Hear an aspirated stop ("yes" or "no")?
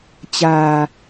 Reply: no